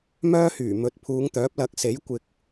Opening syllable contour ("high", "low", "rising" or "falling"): high